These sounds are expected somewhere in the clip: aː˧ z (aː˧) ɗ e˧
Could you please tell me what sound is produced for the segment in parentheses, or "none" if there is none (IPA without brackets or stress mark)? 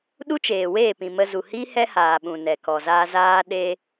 aː˧